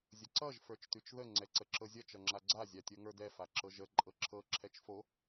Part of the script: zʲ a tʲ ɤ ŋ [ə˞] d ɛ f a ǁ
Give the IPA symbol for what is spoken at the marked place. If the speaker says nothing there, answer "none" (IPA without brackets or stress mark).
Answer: ə˞